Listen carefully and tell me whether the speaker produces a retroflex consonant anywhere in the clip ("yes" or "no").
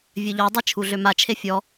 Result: no